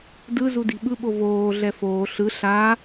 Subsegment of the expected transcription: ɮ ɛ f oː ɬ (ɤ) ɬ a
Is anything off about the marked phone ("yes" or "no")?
yes